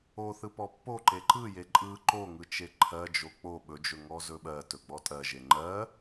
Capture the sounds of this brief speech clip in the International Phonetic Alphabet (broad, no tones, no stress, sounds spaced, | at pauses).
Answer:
o θ ɯ p ɔ pː o ǃ e ǃ ɯ j e ǃʼ ɯ ǃ o ŋ ɯ t͡ʃ e ǃʰ ɜ d͡ʒ o k͡p o ɓ ɵ d͡ʒ ɵ ŋ ɔ z ɵ ɓ ɜ t ɵ ɡ͡b ɔ tʼ ɜ ʒ e ŋ͡ǃ ɜ